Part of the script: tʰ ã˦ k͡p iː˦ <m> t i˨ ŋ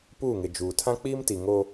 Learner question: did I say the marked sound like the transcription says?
yes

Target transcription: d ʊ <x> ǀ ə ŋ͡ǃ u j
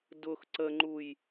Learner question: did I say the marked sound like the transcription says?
yes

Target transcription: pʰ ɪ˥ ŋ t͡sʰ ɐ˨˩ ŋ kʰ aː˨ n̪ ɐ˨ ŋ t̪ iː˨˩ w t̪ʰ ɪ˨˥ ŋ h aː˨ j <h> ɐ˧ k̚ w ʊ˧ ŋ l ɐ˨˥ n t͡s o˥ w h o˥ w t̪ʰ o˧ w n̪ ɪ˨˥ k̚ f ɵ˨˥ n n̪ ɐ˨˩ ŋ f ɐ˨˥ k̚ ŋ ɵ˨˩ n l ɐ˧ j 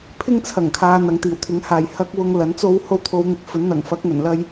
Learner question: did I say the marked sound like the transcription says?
yes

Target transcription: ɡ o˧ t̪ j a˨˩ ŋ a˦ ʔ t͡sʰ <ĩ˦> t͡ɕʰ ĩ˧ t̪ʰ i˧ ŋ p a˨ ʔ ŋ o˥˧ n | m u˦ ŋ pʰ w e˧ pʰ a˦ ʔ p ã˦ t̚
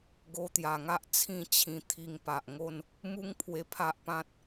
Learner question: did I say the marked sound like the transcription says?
no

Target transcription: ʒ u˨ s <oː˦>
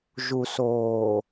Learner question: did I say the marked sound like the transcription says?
no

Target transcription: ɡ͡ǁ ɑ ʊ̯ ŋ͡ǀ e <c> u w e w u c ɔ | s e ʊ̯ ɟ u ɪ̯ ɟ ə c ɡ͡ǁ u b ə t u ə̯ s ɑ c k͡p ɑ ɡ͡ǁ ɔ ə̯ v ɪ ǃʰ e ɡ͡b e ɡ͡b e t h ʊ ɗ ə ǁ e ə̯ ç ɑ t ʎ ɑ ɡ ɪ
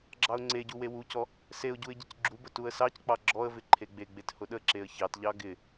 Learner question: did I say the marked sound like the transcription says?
no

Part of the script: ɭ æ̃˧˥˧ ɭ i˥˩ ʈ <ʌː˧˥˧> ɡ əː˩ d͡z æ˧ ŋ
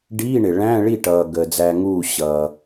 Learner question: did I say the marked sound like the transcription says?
no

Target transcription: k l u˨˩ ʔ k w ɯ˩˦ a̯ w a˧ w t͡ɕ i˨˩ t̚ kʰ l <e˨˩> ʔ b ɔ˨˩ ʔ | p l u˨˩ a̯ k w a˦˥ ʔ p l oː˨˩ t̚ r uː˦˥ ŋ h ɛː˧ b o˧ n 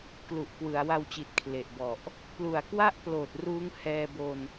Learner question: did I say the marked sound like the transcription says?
yes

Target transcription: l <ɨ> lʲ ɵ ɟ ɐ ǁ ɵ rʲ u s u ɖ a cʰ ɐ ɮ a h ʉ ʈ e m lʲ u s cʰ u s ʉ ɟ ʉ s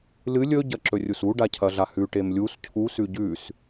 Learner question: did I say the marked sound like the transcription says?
yes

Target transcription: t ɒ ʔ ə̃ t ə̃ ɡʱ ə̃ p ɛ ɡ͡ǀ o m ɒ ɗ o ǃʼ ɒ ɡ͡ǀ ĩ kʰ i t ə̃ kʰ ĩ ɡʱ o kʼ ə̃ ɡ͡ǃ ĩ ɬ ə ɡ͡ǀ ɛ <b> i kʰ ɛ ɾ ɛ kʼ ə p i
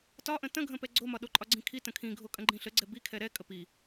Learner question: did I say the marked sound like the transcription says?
yes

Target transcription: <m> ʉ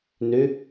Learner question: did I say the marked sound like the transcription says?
no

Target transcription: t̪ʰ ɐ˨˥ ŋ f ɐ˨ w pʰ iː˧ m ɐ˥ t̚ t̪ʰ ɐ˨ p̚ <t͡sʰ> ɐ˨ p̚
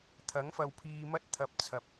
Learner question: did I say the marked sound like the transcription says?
yes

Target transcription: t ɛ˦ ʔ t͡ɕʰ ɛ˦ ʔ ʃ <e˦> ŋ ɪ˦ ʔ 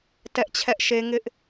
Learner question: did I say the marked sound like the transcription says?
yes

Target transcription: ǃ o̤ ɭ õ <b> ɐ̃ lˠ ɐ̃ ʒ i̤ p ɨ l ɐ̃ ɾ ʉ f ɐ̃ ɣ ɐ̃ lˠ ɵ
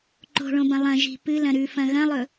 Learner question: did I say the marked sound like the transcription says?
yes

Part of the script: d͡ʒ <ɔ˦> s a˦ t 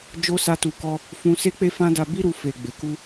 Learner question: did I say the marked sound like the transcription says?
no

